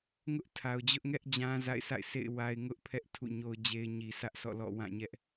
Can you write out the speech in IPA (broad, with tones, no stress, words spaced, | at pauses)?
ŋʊ˦ʔtʰa˨ʊ̯d͡ʑʊ˦ʔŋɛ˦ʔ d͡ʑã˦za̰˦˨ɪ̯sa̰˦˨ɪ̯sḛ˦˨ɪ̯ wa˦ɪ̯ ŋʊ˦ʔpʰɛ˦ʔ tʰṵ˦˨ɲo˦ʊ̯d͡ʑe˦ɪ̯ ɲi˨sʰä˦ʔsʰɔ̰˦˨lɔ̰˦˨ wã˦˨ɲɛ˦ʔ